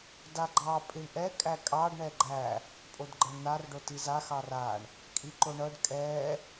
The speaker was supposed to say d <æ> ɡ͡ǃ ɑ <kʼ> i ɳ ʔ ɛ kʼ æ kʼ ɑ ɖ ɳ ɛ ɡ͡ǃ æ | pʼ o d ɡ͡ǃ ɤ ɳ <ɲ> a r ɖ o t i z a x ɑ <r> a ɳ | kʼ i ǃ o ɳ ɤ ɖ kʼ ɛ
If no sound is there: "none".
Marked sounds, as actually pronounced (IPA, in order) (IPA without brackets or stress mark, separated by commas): a, pʼ, n̪, r